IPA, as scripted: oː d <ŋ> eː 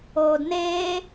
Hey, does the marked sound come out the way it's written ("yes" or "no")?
no